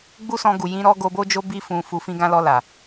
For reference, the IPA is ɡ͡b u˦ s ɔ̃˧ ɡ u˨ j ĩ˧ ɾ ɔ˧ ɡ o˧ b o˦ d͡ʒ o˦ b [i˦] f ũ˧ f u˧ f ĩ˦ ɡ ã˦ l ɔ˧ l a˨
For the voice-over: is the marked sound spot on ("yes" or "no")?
yes